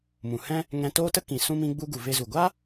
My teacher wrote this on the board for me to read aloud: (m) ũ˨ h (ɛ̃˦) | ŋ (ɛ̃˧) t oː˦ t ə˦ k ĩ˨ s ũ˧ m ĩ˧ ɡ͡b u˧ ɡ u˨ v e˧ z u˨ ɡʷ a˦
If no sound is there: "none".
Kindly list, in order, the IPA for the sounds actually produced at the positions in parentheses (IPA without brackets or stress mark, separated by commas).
m, ɛ̃˦, ɛ̃˧